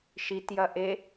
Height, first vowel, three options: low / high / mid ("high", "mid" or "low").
high